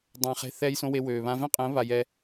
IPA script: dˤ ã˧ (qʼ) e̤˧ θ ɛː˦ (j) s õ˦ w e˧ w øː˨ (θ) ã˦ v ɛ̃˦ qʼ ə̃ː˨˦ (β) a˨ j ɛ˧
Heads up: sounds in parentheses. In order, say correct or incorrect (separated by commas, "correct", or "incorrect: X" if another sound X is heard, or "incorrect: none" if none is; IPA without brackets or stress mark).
incorrect: χ, correct, incorrect: β, correct